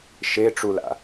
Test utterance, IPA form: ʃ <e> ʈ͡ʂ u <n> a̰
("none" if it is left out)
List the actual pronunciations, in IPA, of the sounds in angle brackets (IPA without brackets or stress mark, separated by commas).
e, l